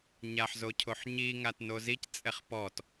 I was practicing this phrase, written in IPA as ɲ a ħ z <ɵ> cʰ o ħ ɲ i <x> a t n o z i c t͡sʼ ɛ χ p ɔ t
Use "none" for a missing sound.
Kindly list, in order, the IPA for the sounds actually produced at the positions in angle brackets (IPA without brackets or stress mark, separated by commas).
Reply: o, ŋ